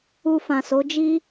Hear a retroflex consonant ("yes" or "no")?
no